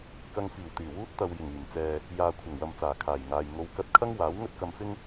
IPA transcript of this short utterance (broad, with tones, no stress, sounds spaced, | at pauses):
k ɐ˧ ŋ f iː˨˩ w t̪ yː˨˩ w uː˧ t̚ t̪ ɐ˨ w j ɪ˨˩ ŋ yː˨˩ m t͡s ɛː˨ | j aː˨ kʷʰ ɐ˨˩ ŋ w ɐ˨ m t͡s aː˨˩ kʰ aː˨˩ j ŋ aː˨ j ŋ o˨˧ w k ɐ˧ t̚ kʰ ɐ˥ ŋ w aː˨˥ w ŋ ɵ˥ t̚ k ɐ˧ m f ɪ˥ ŋ